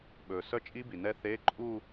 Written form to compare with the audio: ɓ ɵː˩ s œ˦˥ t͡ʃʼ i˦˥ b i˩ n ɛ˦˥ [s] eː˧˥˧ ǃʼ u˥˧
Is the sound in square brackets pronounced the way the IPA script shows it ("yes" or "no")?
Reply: no